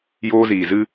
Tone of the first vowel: high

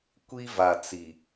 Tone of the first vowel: high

